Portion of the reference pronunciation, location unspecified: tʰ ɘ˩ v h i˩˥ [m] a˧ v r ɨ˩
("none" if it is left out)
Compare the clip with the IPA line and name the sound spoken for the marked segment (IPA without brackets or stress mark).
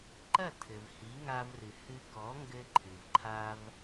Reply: ŋ